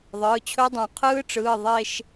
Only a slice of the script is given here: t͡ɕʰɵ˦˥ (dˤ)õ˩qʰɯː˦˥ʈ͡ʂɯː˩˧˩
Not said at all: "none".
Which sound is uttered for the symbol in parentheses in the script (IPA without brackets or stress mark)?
dˤ